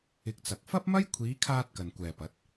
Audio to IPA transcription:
ɪ˧k̚t͡sɐ˨k̚ fɐ˥p̚mɐ˥jkʷʰiː˨˧kʰaː˧t̚ kɐ˨nkʷɛː˨pɐ˨˥t̚

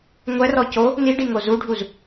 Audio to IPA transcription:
ŋʷɛrɔ co | niɖiŋo zuɖʱuz

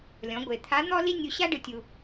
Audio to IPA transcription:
lʲɔ̃˩˧ ɡʷe˩ t̪ʰa˧˥n̪ɔ˥ li˥nʲu˧ ɕa˥ ɖɯ˧tʲu˧

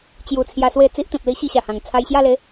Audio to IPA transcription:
t͡ɕju˧ t͡sʰja˧swe˥˧ t͡si˦ʔt̪ẽ˨p̚li˦ ɕi˥˧ɕa˨˩hã˨˩ŋ t͡sʰa˧jɕja˥˧le˨˦

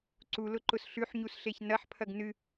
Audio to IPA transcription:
ǀulʊǃʊs ɬʉħɲusɬeç nɐħpʰɐɡ nɨ

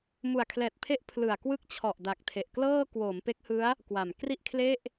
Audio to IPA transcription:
mu˨˩a̯kʰlɛː˨˩t̚pʰe˦˥ʔ pʰlɯ˨˩a̯ kwɯ˦˥k̚t͡ɕʰɔ˨˩ʔ da˨˩k̚tʰe˨˩ʔklɤː˥˩ kwoː˩˦mpe˦˥k̚hɯ˦˥a̯ | kwa˨˩m kri˥˩ʔkʰle˥˩ʔ

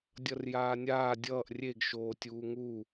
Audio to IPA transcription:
dʲʌrjaːnʲaː dʲʌːʔ rʲeɡ ʃoːtʲuːŋu

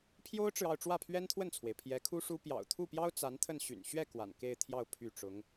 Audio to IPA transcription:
pʰjo˥ʊ̯ʈ͡ʂɻ̩˨ɑ˥˧ʊ̯ ʈ͡ʂwä˥˩pʰɥɛ˥nt̪ʰwə˥˩nt͡sʰwe˩ɪ̯ pʰjɛ˧˥kʰu˥ʂu˥ pjɑ̰˨˩ʊ̯ t̪ʰu˥˩pjɑ˥ʊ̯ t͡sa˧˥nt̪ʰə˥˩n ɕy̰˨˩n ɕɥɛ˥˩ kwa̰˨˩nke˥˧ɪ̯t̪ʰjɑ˥˧ʊ̯ pʰy˥˩ ʈ͡ʂʊ˧˥ŋ

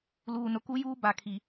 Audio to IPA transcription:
luː˨nʊ˨ku˦juː˦ ba˨kʰi˨

